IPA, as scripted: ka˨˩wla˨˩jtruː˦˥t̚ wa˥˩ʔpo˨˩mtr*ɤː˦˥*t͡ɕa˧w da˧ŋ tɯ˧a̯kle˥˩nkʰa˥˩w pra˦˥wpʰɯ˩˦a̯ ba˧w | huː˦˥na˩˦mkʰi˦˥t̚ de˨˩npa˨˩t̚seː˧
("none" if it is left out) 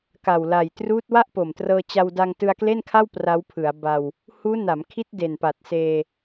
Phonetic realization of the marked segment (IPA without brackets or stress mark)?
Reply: ɤː˧